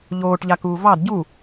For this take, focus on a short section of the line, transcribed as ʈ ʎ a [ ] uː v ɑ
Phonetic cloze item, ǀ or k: k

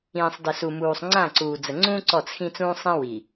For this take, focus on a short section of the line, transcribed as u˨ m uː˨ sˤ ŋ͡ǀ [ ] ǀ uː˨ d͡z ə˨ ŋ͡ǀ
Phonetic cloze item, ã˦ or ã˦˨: ã˦˨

